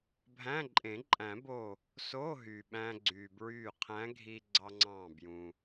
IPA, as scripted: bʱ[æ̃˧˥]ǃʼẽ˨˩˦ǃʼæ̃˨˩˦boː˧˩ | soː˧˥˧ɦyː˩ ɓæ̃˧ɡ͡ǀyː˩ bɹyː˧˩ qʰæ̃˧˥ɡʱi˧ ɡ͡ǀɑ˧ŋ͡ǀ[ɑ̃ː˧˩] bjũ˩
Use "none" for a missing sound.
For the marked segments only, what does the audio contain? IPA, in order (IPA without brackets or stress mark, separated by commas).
æ̃˧˥˧, ɑ̃ː˧˩